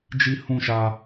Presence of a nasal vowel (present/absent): present